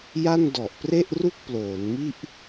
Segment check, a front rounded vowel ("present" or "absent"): absent